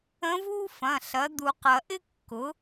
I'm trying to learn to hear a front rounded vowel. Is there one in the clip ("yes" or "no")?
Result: no